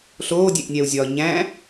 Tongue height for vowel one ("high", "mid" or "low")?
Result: mid